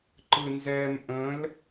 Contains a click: yes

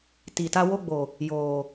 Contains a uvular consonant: no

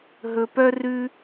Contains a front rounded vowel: yes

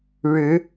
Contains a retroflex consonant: yes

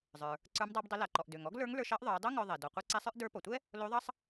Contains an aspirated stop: no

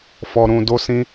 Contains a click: no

